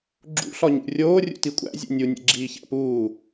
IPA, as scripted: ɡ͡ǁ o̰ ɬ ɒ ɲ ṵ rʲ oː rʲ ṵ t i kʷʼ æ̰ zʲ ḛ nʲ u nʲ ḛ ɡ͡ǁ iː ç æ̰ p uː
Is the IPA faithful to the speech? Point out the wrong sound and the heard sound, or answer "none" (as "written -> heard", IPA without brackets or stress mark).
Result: o̰ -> ṵ